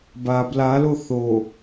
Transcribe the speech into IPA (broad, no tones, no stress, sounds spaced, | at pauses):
b a b l a l o θ o